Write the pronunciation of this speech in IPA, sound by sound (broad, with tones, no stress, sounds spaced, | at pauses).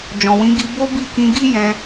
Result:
d͡ʒ ɔ̃˨ w ĩ˨˦ ɡ i˧ b o˦ b i˦˨ k ĩ˧ ɡ i˦ j ɛ̃˧